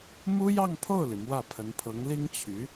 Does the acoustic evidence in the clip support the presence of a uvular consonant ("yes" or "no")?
no